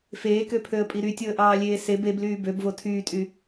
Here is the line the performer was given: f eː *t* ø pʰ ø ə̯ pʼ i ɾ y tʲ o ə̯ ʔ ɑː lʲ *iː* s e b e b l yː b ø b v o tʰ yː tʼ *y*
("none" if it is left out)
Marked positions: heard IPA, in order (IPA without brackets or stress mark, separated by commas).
k, eː, y